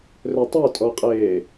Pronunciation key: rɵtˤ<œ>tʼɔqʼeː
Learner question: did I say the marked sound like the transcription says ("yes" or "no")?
no